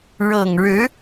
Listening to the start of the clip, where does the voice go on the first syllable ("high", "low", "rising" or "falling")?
low